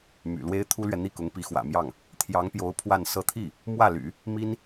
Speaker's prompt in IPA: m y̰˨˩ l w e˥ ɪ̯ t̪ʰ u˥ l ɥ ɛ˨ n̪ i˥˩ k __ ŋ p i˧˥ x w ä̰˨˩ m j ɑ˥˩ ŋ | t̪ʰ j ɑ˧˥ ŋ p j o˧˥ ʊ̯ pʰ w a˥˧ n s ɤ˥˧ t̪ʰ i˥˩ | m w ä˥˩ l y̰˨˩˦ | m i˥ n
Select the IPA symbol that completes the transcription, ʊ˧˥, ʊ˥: ʊ˧˥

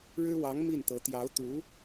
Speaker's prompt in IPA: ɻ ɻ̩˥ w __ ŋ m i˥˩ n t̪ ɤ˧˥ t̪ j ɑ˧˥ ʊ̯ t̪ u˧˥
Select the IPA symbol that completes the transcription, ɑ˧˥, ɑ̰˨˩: ɑ˧˥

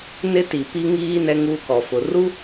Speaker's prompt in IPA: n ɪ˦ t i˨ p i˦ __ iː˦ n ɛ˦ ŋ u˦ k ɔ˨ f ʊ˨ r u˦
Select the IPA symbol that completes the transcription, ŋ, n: ŋ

